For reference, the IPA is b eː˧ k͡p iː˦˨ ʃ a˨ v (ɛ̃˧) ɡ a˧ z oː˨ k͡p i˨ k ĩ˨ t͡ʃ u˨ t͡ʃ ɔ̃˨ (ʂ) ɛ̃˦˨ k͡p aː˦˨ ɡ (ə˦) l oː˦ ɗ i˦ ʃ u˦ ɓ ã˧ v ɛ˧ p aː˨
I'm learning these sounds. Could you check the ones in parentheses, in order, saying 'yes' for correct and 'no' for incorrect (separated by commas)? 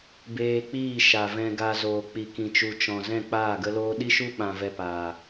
yes, no, yes